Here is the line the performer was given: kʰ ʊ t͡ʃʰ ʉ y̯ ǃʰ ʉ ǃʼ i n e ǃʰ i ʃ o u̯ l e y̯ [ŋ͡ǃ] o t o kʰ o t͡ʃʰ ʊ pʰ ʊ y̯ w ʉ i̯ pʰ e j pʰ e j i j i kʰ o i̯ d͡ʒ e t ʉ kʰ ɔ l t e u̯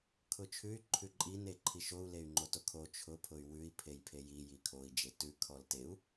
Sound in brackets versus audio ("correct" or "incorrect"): correct